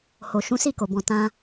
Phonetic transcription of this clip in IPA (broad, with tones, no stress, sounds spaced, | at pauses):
h o˨ ʃ ũ˨˦ s i˦˨ k o˨ b ɔ̃˨ t ã˧